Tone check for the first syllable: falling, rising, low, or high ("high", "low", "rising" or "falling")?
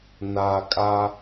low